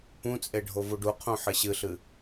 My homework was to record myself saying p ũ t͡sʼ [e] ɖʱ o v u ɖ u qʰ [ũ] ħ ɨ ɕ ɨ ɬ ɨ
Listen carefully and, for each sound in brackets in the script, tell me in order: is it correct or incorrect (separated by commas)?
correct, correct